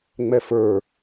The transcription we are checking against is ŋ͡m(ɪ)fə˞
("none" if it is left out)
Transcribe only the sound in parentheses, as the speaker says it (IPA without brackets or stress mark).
ɛ